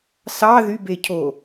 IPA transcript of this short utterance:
s ɑ ð y b e cʰ o

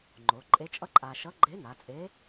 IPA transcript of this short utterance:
ŋ͡ǃ o˩˧ ǃʼ e˧˥ t͡ʃʼ ʌ˥ ǃʼ a˧ ʃ ʌ˧˥ ɡ͡ǃ e˧˥ n a˩˧ t͡sʼ e˧˥

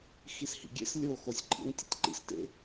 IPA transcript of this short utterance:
x i s h ḭ ɡʲ ḛ s lʲ o x o sʲ ǃʼ ḭ n tʲ ḛ tʲ ǃ ḭ s t ḛ

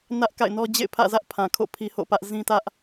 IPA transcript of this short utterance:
n ä˦ ʔ k a̰˦˨ ɪ̯ n ɔ˦ d͡ʑ ḛ˦˨ ɪ̯ pʰ ä̰˦˨ z ä˦ ʔ pʰ ã˨ kʰ o̰˦˨ pʰ i˦ h o̰˦˨ p ä˦ ʔ z ĩ˦ t ä˦ ʔ

